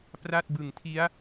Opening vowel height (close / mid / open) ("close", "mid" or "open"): open